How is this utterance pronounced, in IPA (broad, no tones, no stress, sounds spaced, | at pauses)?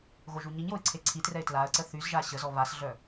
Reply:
ɣ o ʒ u ɲ i ɲ j o ɪ̯ ǀʰ e ǀʰ i t r ɛ ɪ̯ t l a ə̯ ǀ ə θ y z ʒ a ɕ ə z ɔ β a s ɮ œ